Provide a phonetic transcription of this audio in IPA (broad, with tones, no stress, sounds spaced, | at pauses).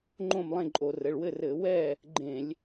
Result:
ŋ͡ǃ õ˥˨ m lˠ ẽ˥˨ ǃʼ o˧˩˧ r ɘ˩˧˩ ɭ w ɘ˥˨ r ɘ˧˩˧ w ɛ˥˨ | ɡ͡ǃ ẽ˧˩˧ lʲ